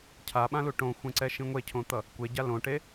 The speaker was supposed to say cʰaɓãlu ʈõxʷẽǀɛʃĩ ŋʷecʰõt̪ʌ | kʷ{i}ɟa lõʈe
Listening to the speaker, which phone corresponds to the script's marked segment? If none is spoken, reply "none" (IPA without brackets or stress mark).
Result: e